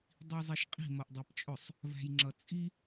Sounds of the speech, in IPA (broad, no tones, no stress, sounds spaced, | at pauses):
dˤ i zˤ i ʃ qʼ i̤ m ʌ ʔ dˤ æ p t͡ʃʼ ʊ sˤ | v æ̤ j ŋ͡ǁ ʌ t͡sʼ i